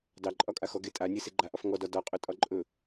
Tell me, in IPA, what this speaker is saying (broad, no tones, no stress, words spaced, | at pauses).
dɑǃʼɒkʼa xɔɡe tʼanʲe seɡ͡ǃaʔɒf ŋɔdɒ dɒqʼɵ tʼɒǃʼɵ